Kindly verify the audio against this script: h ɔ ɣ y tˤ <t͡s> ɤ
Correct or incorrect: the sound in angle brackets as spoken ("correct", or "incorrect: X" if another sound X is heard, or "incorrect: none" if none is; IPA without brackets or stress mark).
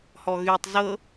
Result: incorrect: z